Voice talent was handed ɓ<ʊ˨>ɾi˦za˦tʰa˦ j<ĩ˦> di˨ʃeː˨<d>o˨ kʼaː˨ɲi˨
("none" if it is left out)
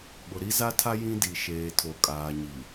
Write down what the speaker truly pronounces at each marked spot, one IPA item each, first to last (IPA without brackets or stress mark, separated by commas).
ʊ˨, ĩ˦, tʰ